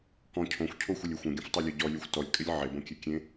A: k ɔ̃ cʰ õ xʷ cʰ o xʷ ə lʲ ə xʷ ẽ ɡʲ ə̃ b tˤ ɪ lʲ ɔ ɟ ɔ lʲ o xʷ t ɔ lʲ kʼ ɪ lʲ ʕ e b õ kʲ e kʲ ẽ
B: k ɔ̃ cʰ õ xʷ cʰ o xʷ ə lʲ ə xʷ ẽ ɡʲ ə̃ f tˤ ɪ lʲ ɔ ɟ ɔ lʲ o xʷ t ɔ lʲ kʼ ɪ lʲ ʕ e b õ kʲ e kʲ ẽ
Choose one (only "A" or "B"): B